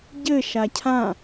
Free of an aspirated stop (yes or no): no